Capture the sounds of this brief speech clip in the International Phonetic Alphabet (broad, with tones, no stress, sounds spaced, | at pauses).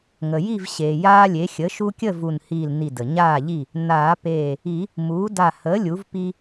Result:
ŋ ə˩ j i˥˨ v ɕ eː˩ j aː˦ lʲ e˩˥ xʲ ə˩˥ ʃ u˦ kʲ ə˥˨ v u˧˩ n h iː˧˩ l n i˧˩ d ə˩ ɲ aː˥˨ ʎ i˥˨ | n aː˨˩˦ p eː˧˩ | i˨˩˦ | m uː˩˥ d a˥˨ h əː˩˥ lʲ u˩˥ v p i˦